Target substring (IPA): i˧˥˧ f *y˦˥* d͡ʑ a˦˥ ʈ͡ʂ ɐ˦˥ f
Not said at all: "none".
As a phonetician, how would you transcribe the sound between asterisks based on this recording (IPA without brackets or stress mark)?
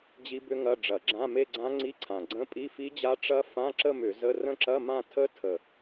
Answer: i˦˥